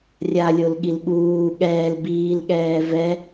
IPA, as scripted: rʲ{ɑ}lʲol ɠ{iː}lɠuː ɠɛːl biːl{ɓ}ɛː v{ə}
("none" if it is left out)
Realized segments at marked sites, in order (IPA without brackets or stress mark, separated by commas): a, i, ɠ, ɛ